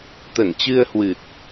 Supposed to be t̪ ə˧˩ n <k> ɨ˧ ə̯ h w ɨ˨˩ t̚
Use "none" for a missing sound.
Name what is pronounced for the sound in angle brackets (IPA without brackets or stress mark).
t͡ɕ